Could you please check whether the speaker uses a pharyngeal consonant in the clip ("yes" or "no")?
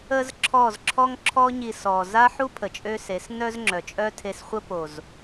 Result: yes